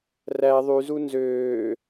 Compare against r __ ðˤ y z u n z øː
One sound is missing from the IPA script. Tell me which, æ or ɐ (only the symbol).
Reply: æ